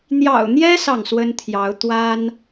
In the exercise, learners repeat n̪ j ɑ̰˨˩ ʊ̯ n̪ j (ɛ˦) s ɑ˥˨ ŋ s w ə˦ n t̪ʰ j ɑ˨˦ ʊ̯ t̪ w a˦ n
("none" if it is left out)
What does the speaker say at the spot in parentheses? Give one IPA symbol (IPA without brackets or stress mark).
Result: ɛ˦